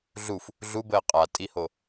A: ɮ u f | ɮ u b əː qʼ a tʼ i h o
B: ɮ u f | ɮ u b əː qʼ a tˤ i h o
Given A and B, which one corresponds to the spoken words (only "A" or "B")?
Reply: A